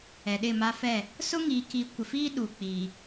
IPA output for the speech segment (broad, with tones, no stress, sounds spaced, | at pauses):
ɛ˨ ɗ ɪ˦˨ m a˦ f ɛ˦˨ | s ʊ˦ ŋ i˨ k i˨ kʷ ɪ˨ f iː˦ ɗ uː˨ k͡p iː˨